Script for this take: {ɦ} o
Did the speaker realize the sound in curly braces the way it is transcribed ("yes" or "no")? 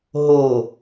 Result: yes